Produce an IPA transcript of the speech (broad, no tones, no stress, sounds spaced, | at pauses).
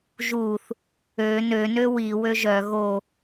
ʒ u θ | ø n ø n ø w i w ø ʒ œ ɣ o